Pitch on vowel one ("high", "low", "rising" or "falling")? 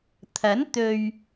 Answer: rising